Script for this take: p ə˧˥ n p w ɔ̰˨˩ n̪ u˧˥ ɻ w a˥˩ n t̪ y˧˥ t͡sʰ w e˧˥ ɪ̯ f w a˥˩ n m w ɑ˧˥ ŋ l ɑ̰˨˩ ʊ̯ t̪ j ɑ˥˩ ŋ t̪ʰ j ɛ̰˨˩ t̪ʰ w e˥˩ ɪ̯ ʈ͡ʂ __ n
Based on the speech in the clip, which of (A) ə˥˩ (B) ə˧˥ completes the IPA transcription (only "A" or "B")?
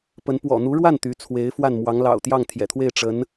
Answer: B